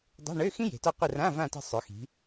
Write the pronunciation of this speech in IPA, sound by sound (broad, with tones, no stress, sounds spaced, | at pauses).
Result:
dˤ e̤˧˥˧ ɳ ø˧˥˧ x ĩ˥ j e̤˩˧ t ɔ˦˨ qʷ ə˦˨ r ã˧˥˧ v ã˦˨ t ə̤˦˨ sˤ ø˩˧ x i̤˩˧